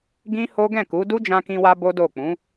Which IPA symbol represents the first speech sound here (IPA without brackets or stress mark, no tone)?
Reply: ɡ